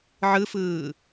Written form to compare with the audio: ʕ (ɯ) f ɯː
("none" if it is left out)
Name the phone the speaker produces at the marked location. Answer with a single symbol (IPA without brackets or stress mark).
ɯ